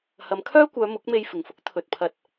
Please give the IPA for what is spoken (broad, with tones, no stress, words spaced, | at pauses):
hɐ˨˧mkʰœː˥kʷœː˨˧ mʊ˨˥k̚me˧jfɪ˨ŋfʊ˥k̚ t̪ʰɵ˨t̚pʰɐ˧t̚